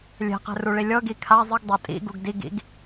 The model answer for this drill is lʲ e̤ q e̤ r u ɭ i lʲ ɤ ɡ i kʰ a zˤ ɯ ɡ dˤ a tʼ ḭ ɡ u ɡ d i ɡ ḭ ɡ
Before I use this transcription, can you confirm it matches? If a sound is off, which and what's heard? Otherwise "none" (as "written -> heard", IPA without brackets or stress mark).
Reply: none